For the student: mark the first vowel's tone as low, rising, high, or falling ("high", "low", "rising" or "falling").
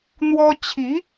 high